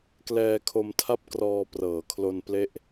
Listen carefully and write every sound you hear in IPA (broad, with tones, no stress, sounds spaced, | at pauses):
k l ɛː˧ kʰ o˧ m tʰ a˥˩ p̚ k r ɔː˧ p r ɤː˩˦ kʰ l o˧ n p l e˦˥ ʔ